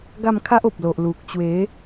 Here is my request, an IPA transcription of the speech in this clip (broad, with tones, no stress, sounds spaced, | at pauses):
ɡ a˥˧ m kʰ a˦ ʔ o˨ p̚ l o˨ ʔ l u˨ k̚ t͡ɕ w e˨˦